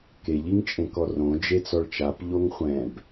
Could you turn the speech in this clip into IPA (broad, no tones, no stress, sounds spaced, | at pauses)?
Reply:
k e ʎ i ŋ t͡ʃʼ ẽ k ɔ r õ d͡ʒ e t͡s ɔ ɭ t͡ʃ a p ʎ o ŋ χʷ ɛ̃ b